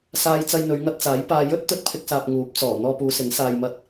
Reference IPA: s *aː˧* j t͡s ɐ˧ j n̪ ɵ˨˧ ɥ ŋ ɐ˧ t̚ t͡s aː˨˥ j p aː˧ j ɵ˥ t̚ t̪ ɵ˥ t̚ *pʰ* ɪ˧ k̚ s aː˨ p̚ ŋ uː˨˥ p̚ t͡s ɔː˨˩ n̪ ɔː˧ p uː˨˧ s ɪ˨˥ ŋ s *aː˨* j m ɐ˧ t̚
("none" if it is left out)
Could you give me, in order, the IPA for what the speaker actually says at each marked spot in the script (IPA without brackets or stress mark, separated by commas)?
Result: aː˧, pʰ, aː˨